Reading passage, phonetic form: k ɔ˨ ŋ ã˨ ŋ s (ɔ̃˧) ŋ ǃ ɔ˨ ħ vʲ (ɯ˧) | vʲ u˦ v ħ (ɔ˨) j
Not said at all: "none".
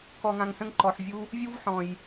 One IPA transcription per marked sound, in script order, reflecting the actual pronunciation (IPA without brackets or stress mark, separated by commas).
ə̃˧, u˧, ɔ̃˨